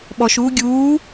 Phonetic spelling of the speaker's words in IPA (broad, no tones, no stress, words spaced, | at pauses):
ɓɔʃuː ɡʲuː